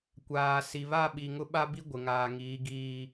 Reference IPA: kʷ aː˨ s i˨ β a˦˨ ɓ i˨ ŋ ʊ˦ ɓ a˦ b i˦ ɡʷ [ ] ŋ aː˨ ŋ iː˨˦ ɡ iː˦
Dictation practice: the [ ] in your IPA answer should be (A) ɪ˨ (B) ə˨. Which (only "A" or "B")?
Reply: A